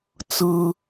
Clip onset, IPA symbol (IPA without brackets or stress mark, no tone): t͡s